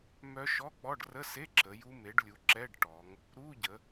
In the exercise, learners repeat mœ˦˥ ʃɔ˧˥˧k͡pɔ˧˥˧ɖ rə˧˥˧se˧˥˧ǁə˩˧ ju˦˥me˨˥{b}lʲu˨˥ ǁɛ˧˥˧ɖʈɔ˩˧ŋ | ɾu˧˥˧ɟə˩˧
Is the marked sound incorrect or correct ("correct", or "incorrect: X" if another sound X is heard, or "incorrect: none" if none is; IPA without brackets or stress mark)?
incorrect: ɖ